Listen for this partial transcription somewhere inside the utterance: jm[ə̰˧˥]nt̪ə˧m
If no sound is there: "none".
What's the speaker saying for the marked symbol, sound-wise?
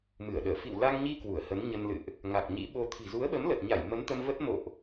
ə˨˦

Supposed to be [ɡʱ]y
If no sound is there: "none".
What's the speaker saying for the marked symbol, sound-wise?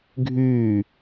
ɡʱ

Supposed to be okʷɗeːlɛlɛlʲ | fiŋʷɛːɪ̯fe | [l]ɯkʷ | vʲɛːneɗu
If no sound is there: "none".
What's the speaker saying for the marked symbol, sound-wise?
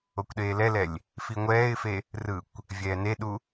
r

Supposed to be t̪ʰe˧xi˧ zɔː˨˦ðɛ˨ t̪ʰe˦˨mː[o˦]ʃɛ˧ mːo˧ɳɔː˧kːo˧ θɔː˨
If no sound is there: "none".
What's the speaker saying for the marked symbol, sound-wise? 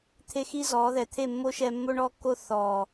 o˦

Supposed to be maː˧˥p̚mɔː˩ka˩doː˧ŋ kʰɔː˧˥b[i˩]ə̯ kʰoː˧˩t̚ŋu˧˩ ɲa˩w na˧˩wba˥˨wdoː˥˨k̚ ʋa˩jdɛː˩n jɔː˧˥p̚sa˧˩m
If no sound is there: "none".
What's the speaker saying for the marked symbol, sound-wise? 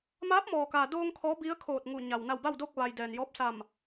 i˧˥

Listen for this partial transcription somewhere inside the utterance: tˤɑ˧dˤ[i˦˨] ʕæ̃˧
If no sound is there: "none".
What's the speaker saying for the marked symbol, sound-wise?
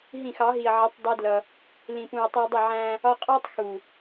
ɪ˦˨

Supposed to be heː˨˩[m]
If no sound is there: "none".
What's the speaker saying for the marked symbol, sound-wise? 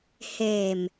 m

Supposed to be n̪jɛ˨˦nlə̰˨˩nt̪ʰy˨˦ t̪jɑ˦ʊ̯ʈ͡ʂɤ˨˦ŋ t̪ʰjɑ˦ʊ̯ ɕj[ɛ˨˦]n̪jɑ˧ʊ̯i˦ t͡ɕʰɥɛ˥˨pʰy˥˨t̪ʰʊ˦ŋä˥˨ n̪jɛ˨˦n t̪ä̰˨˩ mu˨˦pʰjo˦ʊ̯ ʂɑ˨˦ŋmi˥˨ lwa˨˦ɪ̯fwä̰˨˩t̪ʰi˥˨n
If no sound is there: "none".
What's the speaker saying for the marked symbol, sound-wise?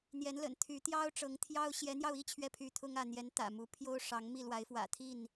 ɛ˨˦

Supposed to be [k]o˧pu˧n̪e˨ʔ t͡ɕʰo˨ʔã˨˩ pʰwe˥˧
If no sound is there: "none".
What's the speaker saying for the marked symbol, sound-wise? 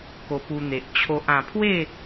k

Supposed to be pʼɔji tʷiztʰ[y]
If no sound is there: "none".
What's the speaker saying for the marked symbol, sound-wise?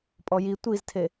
e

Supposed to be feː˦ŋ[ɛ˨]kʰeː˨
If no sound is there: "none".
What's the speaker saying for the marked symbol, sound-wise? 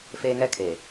ɛ˦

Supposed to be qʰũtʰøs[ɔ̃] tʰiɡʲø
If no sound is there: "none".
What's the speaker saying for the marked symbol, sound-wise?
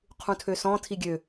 ɔ̃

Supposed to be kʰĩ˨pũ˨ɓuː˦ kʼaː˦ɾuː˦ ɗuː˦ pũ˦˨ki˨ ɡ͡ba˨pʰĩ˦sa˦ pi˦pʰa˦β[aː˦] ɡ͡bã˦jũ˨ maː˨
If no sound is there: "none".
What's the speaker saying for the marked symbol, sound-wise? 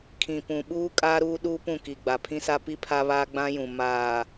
aː˦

